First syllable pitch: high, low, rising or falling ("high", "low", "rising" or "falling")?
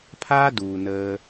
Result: high